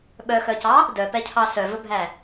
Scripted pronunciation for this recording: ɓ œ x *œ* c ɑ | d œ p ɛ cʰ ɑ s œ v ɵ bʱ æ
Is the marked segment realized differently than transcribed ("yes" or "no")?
no